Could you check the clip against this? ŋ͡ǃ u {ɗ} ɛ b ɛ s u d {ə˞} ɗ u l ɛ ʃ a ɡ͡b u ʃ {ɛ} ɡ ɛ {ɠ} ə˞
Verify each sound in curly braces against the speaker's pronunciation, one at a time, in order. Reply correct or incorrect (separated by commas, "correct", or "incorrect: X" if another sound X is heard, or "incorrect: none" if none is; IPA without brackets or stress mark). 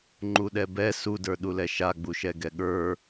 correct, correct, correct, correct